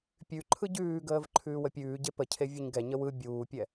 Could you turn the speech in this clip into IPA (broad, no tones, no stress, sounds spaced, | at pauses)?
pʲ ʉ ǃʰ ɯ ɟ ʉː ɡ əː v ǃʰ ʉː w ə pʲ ʉː ɟ e p ə cʰ e vʲ o ɲ ɡ ɛ ɲ ə w ɯ bʲ uː pʲ ɛ